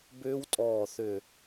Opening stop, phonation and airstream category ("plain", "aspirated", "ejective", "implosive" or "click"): plain